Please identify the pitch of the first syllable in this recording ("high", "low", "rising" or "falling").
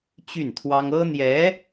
falling